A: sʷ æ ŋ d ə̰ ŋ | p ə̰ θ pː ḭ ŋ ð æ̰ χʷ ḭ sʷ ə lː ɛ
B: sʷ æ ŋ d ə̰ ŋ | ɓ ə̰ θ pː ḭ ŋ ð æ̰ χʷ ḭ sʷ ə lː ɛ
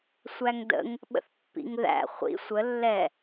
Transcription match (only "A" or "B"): B